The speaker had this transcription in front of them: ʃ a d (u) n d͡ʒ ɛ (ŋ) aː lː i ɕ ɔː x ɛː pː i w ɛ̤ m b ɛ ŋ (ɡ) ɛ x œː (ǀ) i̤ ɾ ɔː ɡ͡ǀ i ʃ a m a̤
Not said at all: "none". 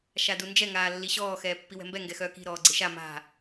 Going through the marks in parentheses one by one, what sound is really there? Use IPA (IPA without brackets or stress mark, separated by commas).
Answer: u, ŋ, ɡ, k